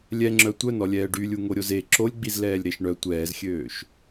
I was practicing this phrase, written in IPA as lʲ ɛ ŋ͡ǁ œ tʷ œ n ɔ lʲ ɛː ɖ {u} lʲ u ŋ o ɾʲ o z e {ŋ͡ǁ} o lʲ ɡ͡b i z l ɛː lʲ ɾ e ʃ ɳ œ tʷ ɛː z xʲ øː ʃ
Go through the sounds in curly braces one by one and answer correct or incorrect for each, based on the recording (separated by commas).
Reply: incorrect, incorrect